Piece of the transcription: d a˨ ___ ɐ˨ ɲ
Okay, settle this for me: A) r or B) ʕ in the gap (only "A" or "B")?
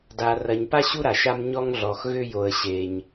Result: A